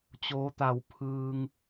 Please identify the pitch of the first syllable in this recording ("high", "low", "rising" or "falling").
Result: rising